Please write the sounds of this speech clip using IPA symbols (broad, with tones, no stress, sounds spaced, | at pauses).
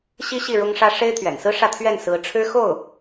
ɕ i˥ ɕ i˥˩ ɻ ʊ˥ ŋ ʂ ä˥ ʂ e˥ ɪ̯ t̪ʰ ɥ ɛ̰˨˩ n s ɹ̩˥ ʂ ä˥˧ t̪ʰ ɥ ɛ˥˩ n s ɹ̩˧˥ ʈ͡ʂʰ ɻ̩˥ x o˥˩ ʊ̯